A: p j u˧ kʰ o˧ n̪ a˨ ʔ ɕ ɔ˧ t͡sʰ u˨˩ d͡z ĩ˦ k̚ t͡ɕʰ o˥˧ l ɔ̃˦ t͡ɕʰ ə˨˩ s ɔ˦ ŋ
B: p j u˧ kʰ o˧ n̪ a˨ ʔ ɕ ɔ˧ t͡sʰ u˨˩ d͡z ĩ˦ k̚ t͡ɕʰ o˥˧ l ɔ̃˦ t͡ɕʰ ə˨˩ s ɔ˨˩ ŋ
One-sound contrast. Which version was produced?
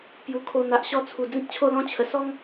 A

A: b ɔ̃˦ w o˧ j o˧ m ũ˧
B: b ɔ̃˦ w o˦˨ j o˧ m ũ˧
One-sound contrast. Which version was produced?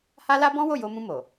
B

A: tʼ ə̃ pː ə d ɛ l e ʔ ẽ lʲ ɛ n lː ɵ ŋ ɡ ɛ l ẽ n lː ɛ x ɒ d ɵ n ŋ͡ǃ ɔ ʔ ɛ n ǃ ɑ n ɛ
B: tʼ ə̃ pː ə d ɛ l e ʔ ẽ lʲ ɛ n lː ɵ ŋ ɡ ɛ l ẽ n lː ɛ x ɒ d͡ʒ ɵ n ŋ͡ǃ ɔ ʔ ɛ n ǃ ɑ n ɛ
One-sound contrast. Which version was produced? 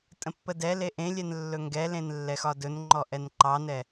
A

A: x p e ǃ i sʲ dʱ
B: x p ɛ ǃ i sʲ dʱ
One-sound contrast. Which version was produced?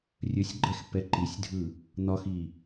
B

